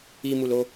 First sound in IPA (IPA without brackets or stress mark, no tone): i